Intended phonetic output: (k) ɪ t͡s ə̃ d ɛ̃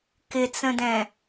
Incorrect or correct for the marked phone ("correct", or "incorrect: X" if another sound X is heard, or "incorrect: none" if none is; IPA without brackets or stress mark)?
correct